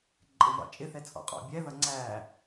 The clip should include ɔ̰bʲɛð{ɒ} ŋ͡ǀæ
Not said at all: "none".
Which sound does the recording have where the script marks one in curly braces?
ʌ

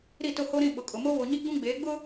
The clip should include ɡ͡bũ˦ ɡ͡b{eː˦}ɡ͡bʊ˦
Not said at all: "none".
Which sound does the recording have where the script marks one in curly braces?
eː˨˦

